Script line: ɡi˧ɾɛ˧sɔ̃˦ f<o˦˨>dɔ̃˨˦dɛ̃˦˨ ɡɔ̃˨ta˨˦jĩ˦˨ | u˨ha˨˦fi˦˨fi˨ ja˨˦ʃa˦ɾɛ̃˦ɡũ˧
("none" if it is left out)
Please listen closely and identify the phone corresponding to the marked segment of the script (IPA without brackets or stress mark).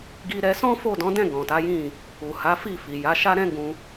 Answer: o˦˨